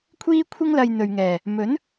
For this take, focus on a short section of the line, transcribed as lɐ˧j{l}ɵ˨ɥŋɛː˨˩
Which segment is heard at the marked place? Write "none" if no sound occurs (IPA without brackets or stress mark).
n̪